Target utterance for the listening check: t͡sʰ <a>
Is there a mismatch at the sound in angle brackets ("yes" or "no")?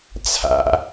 yes